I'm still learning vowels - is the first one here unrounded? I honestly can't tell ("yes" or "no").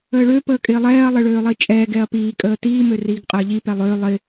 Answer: yes